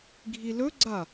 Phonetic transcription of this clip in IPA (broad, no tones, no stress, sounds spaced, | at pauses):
ɡʱ i l ɵ ɡ͡ǀ a